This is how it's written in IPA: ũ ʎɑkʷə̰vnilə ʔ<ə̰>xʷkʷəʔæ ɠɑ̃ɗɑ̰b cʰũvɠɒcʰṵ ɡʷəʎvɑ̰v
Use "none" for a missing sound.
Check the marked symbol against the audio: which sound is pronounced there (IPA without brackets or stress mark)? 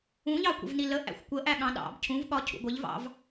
æ̰